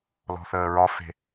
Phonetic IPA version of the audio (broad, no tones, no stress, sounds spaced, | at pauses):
l ɔ̤ θ əː ɹ ɒ f e̤